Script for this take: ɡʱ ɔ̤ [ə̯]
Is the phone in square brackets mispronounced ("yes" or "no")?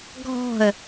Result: no